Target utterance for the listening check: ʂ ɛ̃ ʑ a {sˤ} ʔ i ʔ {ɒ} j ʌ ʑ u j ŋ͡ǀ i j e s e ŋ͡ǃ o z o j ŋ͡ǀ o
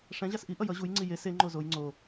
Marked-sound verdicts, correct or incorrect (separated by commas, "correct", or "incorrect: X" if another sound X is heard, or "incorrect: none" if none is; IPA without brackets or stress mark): incorrect: s, incorrect: ʌ